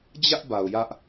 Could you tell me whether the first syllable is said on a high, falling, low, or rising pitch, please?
high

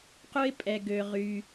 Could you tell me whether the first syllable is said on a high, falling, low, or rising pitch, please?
high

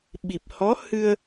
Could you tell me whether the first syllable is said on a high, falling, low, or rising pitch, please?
low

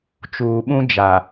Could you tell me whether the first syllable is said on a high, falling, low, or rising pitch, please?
low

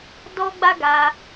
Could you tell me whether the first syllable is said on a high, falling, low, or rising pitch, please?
high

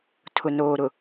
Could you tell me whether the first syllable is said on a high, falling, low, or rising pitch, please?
low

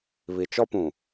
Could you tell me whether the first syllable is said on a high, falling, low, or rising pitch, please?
low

